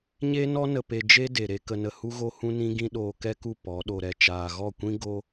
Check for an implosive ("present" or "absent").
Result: present